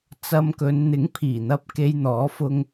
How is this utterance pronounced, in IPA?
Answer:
t͡s ɐ˧ m k ɵ˨˧ n n̪ ɪ˨˥ ŋ pʰ iː˨˩ n̪ ɐ˧ p̚ k e˧ j n̪ ɔː˨˥ f ʊ˧ ŋ

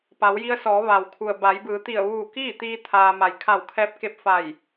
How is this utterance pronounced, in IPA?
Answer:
p a˩˧ w j i˧ ə̯ s ɔː˩˧ ʋ a˩ w kʰ u˩ ə̯ b a˩˧ j b ɯː˩˧ t̪ i˧˩ ə̯ ʋ uː˧˩ k iː˥˨ t̪ iː˧ t̪ʰ aː˧ m a˩ j kʰ a˧˩ w kʰ ɛː˧˥ p̚ k e˧ p̚ f a˧˩ j

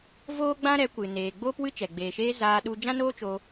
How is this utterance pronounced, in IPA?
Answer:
v oː˦ ɡ͡b ã˦ ɾ ɛ˨˦ kʷ ɨ˨ n eː˨ ɡ͡b oː˦ p w ɨ˦ t͡ʃ ɛ˨ ɡ͡b eː˨ ʃ eː˧ z aː˧ ɗ u˧ d͡ʒ ã˦ n oː˦ t͡ʃ oː˧

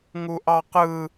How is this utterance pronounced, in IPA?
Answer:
ŋ u ʔ ɑ q ɯ

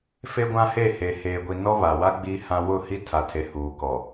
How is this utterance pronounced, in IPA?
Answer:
f e˦ ɡʷ ã˦ h e˦˨ h e˨ h eː˨ ɡʷ i˨ n ɔ˦ β a˨ w a˦ ɡ͡b i˦ h ã˦ w ʊ˦˨ h i˦ tʰ a˨ tʰ e˨ h uː˨ k ɔ˨

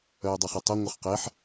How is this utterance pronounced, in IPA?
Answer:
œ ɪ̯ dˤ e χ i tˤ œ ŋʷ ə χ q e ħ

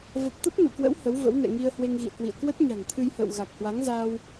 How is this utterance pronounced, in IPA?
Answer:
v ə˨˩ p̚ t̪ ə˦˥ p̚ n ṵ˧˨ k w ə̰˧˥ w h ə˨˦ w v ə̰˧˥ w n ɛ̰˧˨ ŋ i˧ ə̯ h w e˧ ŋ ɣ ḭ˧˨ ə̯ k w ḭ˧˨ ə̯ k w ə˦˥ t̚ ɲ a̤˨˩ ŋ t̪ʰ ɨ˧ j h ə̰ː˧˨ w ɣ a˨˩ k̚ h w a˨˦ ŋ z aː˧ w

